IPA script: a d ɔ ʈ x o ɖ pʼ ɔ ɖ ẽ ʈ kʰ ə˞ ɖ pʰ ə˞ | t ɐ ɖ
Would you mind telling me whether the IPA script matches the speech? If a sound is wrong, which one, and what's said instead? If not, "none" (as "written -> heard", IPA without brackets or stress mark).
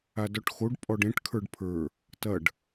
none